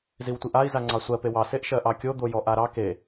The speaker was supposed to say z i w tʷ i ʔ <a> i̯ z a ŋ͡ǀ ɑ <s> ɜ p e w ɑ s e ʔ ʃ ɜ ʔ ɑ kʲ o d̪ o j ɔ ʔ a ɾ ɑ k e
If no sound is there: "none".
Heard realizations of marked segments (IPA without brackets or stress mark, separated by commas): a, sʷ